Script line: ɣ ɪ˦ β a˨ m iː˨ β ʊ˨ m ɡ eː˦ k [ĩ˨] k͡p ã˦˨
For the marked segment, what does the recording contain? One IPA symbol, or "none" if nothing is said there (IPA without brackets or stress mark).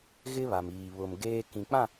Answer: ĩ˨